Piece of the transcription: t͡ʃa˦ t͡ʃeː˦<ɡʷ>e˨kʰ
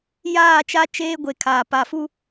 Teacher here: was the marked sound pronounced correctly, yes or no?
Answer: yes